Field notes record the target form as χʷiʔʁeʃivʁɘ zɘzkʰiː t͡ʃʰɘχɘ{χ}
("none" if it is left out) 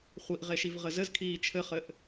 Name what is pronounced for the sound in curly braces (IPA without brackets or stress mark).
ʔ